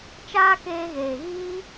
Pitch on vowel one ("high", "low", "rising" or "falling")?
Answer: high